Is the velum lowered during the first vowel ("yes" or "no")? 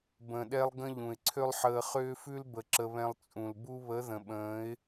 yes